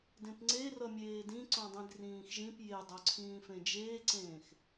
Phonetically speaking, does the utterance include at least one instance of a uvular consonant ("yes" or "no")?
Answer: no